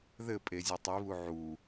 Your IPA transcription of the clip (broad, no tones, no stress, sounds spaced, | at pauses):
ð ɘ pʼ e zʲ ɘ tˤ i β u ʕ u